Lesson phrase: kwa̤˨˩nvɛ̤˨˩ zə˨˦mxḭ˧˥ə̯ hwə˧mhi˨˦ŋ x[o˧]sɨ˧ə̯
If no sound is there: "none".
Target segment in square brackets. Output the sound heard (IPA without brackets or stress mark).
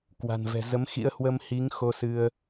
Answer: o˧